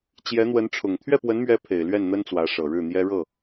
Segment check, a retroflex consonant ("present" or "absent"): present